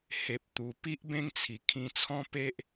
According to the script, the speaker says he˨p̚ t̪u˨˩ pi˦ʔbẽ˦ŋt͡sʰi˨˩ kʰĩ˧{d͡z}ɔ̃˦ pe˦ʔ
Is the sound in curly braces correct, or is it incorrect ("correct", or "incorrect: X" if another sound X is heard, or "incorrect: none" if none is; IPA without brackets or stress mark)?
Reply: incorrect: t͡sʰ